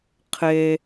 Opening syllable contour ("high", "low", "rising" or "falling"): low